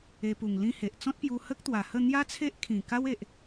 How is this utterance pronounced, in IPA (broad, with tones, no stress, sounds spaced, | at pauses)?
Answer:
e˧ p u˨˩ ŋ l ĩ˦ h e˨ ʔ t͡s ɔ̃˦ t̚ p j u˧ h ə˦ k̚ t̪ w a˨˩ h ə˥˧ n̪ j a˦ t͡sʰ e˦ ʔ kʰ ĩ˨˩ k a˦ w e˨ ʔ